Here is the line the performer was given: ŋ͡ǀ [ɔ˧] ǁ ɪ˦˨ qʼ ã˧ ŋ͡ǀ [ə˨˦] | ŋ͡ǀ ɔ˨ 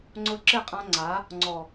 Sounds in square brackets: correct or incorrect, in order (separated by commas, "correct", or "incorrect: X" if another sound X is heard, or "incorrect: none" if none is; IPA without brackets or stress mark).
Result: incorrect: ʊ˧, incorrect: a˨˦